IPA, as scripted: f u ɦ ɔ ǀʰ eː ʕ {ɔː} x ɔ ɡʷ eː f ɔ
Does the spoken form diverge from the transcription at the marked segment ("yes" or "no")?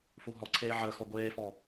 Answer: yes